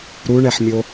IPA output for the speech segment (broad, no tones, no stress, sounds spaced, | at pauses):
ɾ u ɳ ɛ ħ mʲ o